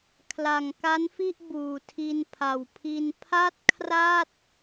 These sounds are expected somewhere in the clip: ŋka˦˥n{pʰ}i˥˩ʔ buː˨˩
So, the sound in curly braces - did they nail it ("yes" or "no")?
no